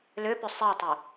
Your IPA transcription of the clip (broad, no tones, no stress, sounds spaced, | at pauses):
l ʏ p ʏ sˤ i tˤ ʏ